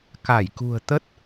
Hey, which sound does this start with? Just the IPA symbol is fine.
k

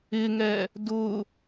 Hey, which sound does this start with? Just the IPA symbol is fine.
ɪ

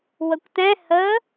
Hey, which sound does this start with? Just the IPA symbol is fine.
w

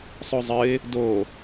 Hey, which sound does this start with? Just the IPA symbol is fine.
sˤ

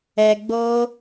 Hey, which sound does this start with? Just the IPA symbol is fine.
ɛ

